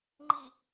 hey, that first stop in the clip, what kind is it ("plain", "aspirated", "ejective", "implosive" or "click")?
click